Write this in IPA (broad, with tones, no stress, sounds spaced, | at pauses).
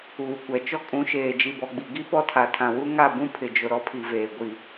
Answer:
uː˨ kʷ ɛ˨ t͡ʃ ɔ˦ kʼ ũ˨˦ ʃ eː˨ d͡ʒ i˨ b ɔ˨ ɡ͡b i˨ ɡ i˦ p ɔ˦ tʰ a˨ tʰ ã˨ w u˦ ŋ a˦˨ b ũ˦ pʰ ɪ˨ d͡ʒ ʊ˨ ɾ ɔ˦ pʰ i˨ v eː˨ ɡʷ i˨